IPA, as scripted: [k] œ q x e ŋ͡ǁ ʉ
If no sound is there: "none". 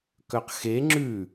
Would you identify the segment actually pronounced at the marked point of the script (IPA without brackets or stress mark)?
k